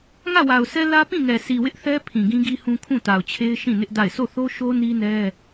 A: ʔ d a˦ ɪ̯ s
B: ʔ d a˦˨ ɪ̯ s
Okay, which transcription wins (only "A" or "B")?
B